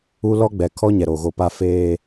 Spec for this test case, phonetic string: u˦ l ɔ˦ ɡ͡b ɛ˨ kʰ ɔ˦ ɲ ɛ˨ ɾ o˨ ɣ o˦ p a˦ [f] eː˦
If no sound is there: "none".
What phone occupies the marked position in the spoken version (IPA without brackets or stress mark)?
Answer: f